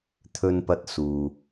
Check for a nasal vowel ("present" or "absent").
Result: absent